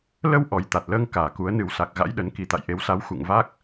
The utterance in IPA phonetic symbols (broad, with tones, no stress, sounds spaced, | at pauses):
l ə˧ w ʔ ɔ˨˩ j t̪ a˨˩ t̚ l əː˧ ŋ k aː˨˩ k u˨˦ ə̯ n ɨ˨˩ w s a˨˩ k̚ ɣ a̰˧˥ j ɗ ə˨˦ n k i˨˩ t̪ a̰˧˨ j ʔ e˨˦ w s a˨˦ w x ṵ˧˨ ŋ v a˦˥ k̚